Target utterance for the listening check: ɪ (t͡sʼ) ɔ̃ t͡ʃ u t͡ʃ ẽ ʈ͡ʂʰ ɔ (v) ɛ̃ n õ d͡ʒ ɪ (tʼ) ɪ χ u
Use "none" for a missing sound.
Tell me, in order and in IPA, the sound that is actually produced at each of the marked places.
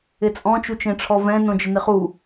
t͡sʼ, v, n

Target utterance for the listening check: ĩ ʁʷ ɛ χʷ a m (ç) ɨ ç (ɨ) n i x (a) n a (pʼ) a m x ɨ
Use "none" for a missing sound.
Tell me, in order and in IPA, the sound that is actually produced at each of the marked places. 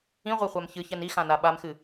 ç, ɛ, ã, ɓ

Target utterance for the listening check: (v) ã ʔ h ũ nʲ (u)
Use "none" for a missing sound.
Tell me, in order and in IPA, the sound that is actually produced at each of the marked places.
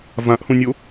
v, o

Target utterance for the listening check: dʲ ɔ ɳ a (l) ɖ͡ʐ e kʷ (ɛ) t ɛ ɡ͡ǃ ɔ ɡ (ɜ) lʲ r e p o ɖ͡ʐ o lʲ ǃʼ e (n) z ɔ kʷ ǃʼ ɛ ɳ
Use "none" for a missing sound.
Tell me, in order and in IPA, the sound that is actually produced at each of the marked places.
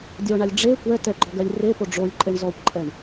lʲ, ɛ, ɜ, ɳ

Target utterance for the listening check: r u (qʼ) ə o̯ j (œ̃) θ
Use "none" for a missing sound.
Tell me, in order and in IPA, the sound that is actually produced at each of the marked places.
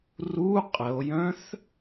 qʼ, œ̃

